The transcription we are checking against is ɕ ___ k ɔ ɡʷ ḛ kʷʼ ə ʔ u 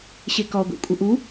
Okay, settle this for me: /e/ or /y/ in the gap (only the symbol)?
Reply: e